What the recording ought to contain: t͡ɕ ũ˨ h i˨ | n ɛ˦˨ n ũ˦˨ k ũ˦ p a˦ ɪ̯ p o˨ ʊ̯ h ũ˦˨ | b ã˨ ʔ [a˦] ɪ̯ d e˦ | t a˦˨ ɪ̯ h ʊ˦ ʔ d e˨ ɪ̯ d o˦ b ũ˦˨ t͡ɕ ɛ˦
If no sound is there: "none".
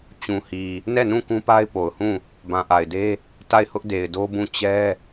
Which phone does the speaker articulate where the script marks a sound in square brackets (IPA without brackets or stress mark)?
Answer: a˨